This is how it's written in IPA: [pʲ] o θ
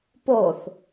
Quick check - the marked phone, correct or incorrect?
incorrect